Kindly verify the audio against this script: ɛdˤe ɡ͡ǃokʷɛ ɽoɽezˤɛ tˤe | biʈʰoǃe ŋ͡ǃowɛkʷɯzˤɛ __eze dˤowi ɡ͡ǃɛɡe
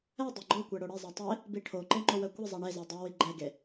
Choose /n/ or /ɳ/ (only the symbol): ɳ